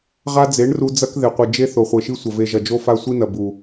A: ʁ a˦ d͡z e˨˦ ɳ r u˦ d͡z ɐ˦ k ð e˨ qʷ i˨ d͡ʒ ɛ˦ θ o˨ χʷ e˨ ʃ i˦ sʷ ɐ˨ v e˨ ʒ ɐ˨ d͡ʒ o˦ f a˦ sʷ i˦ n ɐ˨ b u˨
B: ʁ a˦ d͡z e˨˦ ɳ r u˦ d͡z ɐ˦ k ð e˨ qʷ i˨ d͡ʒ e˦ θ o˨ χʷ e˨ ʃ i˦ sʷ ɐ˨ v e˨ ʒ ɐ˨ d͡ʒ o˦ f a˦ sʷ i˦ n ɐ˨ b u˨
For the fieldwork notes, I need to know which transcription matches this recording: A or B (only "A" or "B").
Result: B